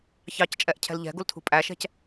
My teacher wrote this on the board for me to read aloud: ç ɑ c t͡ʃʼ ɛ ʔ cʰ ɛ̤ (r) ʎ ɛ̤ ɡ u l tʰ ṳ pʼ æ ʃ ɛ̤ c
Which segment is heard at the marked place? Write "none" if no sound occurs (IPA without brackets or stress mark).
l